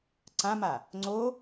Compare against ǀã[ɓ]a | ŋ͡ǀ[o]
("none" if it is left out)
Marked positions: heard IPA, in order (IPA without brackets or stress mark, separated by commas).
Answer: m, o